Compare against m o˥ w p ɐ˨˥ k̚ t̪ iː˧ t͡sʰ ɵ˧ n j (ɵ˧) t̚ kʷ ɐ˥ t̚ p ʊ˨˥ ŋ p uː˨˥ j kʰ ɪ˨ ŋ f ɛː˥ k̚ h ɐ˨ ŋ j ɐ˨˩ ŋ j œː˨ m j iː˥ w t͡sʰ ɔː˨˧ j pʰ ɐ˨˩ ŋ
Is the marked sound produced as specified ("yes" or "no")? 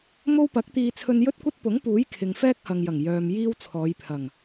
no